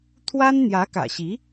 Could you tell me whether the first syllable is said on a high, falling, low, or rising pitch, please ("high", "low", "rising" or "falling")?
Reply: high